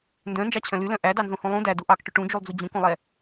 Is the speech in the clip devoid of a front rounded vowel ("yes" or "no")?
no